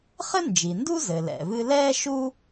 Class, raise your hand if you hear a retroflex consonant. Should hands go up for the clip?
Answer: no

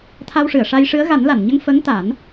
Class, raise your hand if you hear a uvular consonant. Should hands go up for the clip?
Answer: no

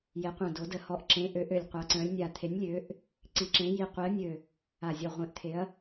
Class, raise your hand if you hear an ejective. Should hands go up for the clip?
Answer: no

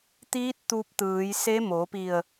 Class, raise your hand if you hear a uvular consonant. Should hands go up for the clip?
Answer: no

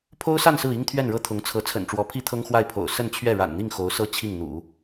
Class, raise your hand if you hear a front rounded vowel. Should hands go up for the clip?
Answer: no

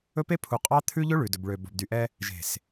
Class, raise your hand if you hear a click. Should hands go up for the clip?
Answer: no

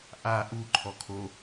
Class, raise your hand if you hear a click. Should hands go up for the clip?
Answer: yes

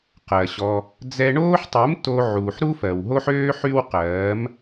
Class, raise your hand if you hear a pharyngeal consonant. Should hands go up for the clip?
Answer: yes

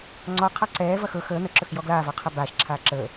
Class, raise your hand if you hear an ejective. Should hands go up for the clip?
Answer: no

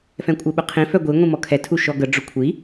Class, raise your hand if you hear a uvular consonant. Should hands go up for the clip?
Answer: yes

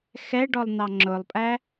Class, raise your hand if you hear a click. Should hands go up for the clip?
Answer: yes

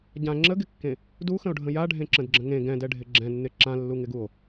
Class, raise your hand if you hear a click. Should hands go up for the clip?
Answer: yes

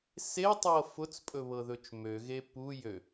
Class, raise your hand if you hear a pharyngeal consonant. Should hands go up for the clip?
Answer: no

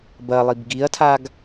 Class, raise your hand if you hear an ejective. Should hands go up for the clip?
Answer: no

